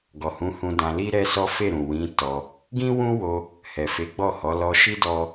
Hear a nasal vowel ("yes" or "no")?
yes